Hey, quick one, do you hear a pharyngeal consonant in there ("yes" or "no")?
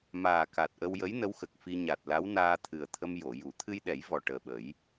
no